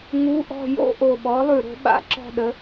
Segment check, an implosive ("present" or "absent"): present